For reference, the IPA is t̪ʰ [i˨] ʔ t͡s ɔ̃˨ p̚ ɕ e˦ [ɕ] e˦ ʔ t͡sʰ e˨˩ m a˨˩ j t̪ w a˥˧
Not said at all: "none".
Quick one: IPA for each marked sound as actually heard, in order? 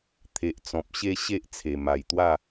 e˨, ɕ

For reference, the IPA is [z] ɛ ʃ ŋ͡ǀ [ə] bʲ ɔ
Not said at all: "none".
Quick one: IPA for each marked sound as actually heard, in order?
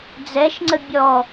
d͡z, ə

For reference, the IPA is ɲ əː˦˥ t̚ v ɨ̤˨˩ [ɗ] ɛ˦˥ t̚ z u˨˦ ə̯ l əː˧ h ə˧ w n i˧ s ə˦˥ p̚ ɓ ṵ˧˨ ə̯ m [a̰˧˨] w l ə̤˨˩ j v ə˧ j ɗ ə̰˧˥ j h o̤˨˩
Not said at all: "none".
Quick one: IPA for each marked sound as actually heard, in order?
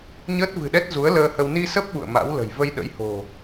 ɗ, a̰˧˥

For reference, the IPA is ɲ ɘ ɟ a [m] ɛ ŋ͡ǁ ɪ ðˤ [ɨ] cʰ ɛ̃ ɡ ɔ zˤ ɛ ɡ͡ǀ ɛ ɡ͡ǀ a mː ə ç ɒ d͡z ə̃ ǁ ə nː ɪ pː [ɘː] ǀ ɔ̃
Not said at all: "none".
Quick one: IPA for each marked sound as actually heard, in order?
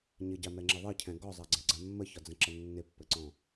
m, ɨ, ɘ

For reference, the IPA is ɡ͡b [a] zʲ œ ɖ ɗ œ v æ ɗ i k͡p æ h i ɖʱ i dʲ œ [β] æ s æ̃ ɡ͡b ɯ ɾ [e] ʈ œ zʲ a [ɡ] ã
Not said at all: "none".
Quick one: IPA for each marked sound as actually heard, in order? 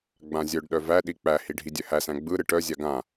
ã, h, ɨ, ɡ

